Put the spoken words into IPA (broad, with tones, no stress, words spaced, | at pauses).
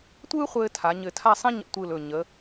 tʷɯː˥χʷɘː˧ tʰa˩˧ɲɘ˧˩tʰa˥˧sˤĩ˥ ɲə̰˧tʷɯ˧˩l ɵ˧˩ ɲə˩˧